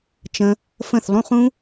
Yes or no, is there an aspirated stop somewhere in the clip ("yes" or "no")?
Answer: no